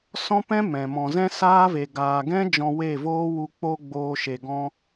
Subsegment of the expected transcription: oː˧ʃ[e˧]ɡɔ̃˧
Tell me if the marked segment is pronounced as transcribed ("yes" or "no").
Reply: no